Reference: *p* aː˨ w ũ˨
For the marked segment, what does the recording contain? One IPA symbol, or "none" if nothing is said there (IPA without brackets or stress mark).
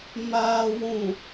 m